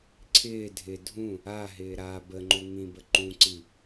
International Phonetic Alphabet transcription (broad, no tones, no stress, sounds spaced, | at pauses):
ǀʰ ɪː dʱ ɪ dʱ ũ | a ɦ ɪː ɾ a b ə ŋ͡ǃ u ŋ ĩ b ə ǃ ũ ǀ i